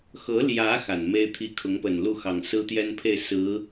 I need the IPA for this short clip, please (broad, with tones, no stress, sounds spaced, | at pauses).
x ɤ˧˥ l j ä˧˥ x a˨˩ n m e˥ ɪ̯ t̪ʰ i˥˩ kʰ ʊ˧˥ ŋ p ə˨˩ n l u˥˩ x ɑ˨˩ ŋ s ɹ̩˥ t̪ j ɛ˥ n pʰ e˥˩ ɪ̯ s ɹ̩˧˥